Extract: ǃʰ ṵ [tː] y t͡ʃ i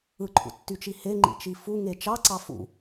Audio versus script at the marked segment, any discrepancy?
no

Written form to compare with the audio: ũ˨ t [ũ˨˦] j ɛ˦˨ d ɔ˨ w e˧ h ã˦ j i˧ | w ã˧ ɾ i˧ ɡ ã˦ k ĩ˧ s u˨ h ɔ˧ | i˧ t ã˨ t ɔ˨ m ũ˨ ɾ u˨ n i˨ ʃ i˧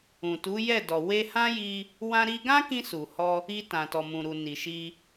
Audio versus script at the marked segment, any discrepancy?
yes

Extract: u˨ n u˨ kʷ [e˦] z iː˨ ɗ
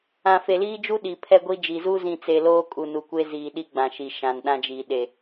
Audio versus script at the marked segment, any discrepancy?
no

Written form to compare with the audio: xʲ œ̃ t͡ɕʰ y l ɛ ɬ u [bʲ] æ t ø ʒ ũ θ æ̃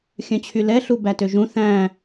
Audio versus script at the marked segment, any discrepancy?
yes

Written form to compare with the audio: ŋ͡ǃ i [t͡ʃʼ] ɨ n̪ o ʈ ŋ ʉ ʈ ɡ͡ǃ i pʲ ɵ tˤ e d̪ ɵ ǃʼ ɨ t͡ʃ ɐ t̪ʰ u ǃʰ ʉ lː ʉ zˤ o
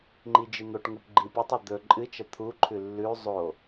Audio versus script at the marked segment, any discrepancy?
yes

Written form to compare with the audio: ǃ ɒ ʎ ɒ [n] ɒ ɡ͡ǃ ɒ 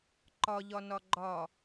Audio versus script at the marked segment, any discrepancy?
no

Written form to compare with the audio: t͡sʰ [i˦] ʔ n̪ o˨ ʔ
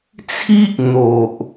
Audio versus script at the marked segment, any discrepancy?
no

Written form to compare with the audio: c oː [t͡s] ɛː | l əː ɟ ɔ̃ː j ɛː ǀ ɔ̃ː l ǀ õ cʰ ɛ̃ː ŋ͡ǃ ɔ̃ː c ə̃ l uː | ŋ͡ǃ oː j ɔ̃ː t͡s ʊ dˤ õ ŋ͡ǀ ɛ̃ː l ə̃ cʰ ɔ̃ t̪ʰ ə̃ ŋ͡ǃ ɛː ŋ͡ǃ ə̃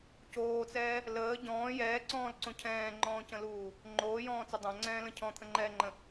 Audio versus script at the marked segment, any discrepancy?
no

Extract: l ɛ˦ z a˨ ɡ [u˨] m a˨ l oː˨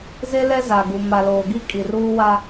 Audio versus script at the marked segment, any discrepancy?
no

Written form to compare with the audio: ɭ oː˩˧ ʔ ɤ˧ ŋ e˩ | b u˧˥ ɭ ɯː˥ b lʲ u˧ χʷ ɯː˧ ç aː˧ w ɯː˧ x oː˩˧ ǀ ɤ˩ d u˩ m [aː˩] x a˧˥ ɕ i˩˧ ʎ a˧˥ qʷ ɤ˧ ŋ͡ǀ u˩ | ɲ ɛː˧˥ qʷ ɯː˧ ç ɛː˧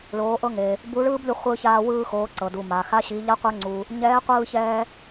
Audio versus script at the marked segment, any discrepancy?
no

